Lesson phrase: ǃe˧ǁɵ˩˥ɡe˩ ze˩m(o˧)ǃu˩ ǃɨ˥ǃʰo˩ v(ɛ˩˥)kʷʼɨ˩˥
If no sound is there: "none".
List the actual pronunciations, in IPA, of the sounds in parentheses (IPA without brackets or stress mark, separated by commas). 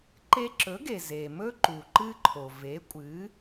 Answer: ɵ˧, e˩˥